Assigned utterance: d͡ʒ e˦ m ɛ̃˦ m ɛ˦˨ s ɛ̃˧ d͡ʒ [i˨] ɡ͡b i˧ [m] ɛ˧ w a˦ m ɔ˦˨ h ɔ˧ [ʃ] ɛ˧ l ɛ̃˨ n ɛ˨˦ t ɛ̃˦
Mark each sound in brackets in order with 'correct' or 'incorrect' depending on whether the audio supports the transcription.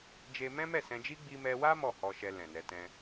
incorrect: i˦, correct, correct

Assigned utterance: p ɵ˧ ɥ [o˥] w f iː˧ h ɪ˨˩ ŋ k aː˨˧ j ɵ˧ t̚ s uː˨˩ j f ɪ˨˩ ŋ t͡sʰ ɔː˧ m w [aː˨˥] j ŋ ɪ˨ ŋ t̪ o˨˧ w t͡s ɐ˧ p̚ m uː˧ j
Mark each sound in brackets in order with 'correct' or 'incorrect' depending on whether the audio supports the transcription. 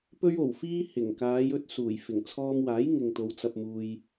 incorrect: o˨˩, correct

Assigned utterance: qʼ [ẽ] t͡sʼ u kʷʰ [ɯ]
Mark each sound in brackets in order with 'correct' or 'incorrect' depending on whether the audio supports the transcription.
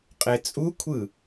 incorrect: e, correct

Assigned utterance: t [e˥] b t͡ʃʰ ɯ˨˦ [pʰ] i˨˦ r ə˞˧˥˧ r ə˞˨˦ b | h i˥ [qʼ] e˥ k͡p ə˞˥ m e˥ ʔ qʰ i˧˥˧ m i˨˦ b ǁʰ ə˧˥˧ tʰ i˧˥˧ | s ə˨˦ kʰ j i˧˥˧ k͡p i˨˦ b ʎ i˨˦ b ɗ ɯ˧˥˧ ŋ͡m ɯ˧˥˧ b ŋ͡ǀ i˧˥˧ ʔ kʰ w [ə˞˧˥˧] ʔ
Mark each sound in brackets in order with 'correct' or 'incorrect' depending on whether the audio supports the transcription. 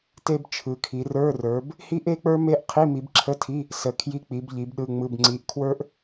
correct, incorrect: kʰ, incorrect: ʔ, incorrect: ə˞˥

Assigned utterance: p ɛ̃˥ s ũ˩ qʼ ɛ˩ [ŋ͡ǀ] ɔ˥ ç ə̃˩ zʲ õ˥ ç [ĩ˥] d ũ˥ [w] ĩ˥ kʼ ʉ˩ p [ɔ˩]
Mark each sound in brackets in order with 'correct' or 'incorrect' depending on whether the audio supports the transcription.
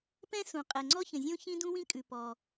correct, correct, correct, correct

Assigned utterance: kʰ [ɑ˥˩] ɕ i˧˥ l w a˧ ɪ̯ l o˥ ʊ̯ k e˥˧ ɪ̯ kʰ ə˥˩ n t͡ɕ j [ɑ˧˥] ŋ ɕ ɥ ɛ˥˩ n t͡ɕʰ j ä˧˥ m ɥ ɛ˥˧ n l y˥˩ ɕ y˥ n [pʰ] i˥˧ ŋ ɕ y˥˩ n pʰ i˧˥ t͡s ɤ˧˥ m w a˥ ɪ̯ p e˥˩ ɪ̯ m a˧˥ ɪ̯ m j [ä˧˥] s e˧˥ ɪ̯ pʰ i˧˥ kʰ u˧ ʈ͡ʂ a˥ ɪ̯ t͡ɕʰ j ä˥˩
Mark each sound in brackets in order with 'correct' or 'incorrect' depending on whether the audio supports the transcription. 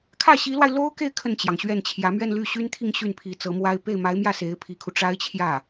incorrect: ä˥˩, incorrect: ɑ˩, incorrect: t̪ʰ, incorrect: ä˥˩

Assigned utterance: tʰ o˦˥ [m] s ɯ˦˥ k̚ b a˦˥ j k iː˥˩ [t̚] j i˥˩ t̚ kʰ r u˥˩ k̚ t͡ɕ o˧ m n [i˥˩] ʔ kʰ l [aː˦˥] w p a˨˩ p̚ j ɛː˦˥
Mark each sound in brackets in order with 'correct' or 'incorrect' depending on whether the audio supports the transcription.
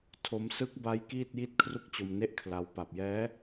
correct, correct, incorrect: e˥˩, incorrect: a˦˥

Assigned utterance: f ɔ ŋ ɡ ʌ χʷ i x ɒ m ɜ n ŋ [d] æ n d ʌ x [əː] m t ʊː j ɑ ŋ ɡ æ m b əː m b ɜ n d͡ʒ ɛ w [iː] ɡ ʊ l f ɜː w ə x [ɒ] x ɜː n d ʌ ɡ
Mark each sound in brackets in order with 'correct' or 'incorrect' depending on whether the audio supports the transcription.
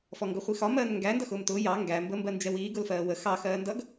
incorrect: ɡ, incorrect: ʊː, correct, incorrect: ɑ

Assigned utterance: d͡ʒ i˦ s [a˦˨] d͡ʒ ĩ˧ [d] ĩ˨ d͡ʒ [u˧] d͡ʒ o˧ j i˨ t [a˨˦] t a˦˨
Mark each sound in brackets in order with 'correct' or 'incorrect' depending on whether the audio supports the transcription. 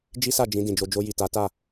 correct, correct, incorrect: o˧, correct

